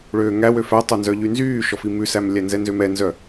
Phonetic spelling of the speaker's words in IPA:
ɭ øː ŋ æ w ø f æ tˤ o n z œ ʎ y n z yː ʃ ɔ f i m ʉ s æ m lʲ æ n z ɛ n z ø m ɛ n z œ

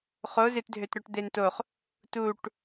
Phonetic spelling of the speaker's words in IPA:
χ o z ɪ t dʱ ø t ɾ œ ʈ d̪ e n t o χ | t u ʈ

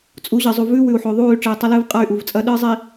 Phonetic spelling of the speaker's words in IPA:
t͡sʼ u˨˦ ʑ ɨ˨ zˤ u˨ v ʉ˦ w ʉ˨ u̯ ħ o˨ ðˤ uː˦˨ y̯ ʈ͡ʂ eː˨ tˤ ɐ˦ l ɨː˦ v qʼ a˦˨ y̯ ʔ u˨ v t͡sʼ ɐ˦ ɗ ɨː˦ zˤ i˨

